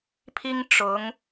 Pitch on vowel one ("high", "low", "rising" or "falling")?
high